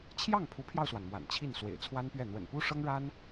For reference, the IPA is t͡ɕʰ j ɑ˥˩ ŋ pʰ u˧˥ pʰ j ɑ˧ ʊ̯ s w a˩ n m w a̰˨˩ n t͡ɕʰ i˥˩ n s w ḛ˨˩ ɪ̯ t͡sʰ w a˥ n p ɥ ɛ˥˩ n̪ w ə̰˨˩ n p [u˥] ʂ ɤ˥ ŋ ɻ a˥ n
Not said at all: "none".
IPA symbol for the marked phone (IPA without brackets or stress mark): u˥